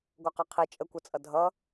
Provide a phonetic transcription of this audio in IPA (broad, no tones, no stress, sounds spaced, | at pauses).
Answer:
ɡʷ ʌ q ʌ qʰ i t͡ʃʼ ə kʷ ʌ t͡sʼ ʌ dʱ ʌ